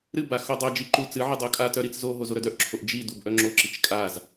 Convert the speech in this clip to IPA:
ɾɨba xodˤœd͡ʒi ǃu t͡sɨʕɨ dˤokʼatœ ɾit͡szoɦo zoɾœdœʔǁʰoʔ d͡ʒidub ʔœŋ͡ǁoǁit͡ʃ kʼaz

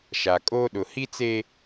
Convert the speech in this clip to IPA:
ʃa˨kʼoː˦ ɗʊ˨hi˦t͡seː˦

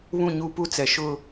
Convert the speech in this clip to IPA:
βũ˦˨ɲuː˦pu˦t͡sɛ˨ ʃʊ˦˨

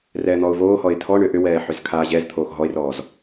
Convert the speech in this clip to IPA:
rɛːn̪ɔʊ̯voːhɔɪ̯ tʰɔɳʏ ʔʏwɛː ħʏzkʰaːʑɛzt̪ʰoːx ɦɔɪ̯rɔːz

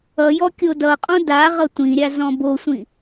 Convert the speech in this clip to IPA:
ʌjɔ kʲodʌqʼõ da ʁʌtʷĩɾʲa zɔ̃bosʷĩ

